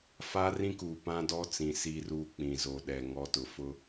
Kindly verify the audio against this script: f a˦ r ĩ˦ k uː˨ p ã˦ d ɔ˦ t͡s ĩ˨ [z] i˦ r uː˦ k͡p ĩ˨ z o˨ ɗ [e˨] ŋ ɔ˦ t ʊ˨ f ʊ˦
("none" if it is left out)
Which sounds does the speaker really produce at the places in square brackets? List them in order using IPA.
s, ɛ˨

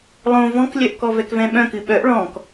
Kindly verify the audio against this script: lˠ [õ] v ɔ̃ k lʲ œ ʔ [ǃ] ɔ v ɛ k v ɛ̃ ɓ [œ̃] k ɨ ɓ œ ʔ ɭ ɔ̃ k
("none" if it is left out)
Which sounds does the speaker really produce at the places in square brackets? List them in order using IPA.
õ, k, œ̃

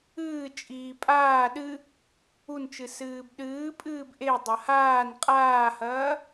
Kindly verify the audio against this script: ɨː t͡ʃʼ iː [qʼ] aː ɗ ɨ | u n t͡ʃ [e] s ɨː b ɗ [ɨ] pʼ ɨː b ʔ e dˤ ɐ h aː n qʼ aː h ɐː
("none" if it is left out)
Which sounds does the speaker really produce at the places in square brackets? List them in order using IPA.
pʼ, ɨ, ɨː

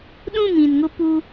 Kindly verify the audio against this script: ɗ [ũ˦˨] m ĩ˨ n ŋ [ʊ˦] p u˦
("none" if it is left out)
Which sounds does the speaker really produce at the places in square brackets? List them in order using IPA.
ũ˦˨, ʊ˦

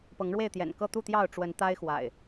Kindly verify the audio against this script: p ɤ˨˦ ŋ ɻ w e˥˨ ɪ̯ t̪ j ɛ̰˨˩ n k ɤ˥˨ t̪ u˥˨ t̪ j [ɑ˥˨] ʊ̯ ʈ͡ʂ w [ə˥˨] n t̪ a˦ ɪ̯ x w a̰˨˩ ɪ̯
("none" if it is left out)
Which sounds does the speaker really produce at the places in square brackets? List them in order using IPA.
ɑ˥˨, ə˨˦

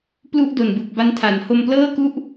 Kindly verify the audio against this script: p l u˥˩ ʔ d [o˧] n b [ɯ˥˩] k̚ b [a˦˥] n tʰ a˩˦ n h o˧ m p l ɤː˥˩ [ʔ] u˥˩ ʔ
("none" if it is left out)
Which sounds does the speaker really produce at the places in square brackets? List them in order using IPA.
o˨˩, ɯ˨˩, a˦˥, k

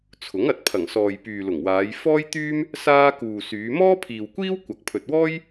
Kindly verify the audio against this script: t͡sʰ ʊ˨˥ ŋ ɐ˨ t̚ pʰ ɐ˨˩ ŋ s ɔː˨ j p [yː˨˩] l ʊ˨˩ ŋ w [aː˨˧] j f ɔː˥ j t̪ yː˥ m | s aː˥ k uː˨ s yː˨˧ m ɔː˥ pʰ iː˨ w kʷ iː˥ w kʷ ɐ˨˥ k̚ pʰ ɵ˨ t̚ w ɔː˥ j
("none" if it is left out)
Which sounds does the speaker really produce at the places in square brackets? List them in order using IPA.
yː˨, aː˨˧

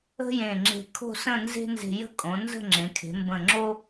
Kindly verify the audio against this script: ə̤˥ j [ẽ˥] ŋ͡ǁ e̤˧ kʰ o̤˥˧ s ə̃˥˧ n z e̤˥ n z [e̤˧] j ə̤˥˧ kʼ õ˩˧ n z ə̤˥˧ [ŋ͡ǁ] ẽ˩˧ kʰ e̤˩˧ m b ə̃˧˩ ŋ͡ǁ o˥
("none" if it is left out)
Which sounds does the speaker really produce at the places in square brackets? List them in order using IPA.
ẽ˧˩, e̤˧, ŋ͡ǁ

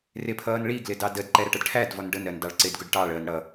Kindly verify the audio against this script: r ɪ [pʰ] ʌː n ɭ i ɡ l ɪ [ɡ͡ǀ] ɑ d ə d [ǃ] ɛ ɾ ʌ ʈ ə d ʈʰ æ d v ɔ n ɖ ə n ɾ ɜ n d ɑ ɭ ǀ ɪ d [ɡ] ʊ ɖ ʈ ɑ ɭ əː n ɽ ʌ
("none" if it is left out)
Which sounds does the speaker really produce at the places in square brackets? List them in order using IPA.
pʰ, d, ǃ, ɡ

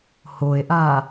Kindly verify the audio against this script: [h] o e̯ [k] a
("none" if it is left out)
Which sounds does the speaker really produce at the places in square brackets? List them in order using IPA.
h, ʔ

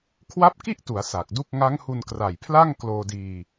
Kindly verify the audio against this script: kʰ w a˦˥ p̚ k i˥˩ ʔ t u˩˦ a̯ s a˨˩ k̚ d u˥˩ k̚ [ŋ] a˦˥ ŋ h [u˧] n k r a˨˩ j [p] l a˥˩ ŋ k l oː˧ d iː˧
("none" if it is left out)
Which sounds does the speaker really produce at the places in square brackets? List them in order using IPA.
ŋ, u˧, pʰ

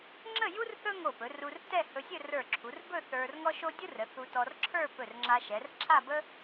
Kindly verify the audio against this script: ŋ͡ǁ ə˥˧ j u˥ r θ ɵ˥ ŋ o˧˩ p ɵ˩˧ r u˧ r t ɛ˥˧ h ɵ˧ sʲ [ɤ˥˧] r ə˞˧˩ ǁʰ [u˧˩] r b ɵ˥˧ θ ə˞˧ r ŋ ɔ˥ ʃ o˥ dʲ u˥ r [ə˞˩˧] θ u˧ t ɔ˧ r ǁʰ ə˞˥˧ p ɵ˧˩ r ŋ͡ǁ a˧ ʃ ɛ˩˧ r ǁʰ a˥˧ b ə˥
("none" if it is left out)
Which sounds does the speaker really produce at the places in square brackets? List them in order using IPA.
ɵ˥˧, u˩˧, ə˩˧

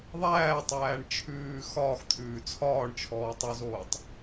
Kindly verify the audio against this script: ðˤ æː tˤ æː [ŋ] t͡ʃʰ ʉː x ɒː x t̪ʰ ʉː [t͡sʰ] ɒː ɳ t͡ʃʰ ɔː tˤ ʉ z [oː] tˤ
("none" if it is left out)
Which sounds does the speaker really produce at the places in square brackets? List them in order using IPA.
ɳ, t͡sʰ, oː

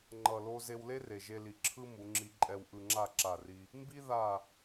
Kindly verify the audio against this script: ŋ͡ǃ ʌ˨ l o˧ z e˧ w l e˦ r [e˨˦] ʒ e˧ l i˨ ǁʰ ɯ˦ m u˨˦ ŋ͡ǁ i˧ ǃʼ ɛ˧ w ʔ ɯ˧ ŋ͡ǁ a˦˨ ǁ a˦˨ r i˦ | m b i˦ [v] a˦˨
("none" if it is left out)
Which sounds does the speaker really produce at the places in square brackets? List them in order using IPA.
e˨, ð

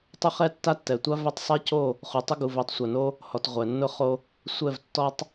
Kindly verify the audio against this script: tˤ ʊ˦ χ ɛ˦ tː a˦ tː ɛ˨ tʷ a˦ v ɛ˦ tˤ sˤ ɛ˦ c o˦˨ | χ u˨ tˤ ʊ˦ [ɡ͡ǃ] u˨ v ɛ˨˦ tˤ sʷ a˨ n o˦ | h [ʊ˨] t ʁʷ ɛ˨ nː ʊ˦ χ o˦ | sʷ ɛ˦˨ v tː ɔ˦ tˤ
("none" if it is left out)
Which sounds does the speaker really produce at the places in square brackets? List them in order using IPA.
ɡ, ɔ˨

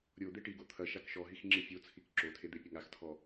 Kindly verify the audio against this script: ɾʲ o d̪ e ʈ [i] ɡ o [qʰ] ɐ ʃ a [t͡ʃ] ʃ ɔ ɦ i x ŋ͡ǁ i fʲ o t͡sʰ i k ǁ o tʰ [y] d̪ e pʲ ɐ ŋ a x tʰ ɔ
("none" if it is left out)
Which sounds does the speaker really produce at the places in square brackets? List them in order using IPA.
i, t̪ʰ, k, e

